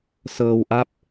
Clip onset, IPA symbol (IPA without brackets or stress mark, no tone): s